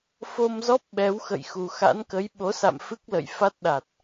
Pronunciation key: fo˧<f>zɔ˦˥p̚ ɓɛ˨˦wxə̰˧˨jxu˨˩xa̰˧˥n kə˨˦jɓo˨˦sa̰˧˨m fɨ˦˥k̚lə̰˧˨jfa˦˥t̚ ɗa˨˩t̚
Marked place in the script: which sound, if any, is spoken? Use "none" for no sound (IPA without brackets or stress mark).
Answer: m